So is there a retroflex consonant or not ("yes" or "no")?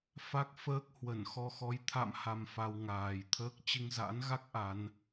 no